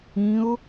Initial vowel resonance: nasal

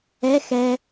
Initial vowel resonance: oral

